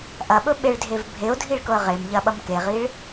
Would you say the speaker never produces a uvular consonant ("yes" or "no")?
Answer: no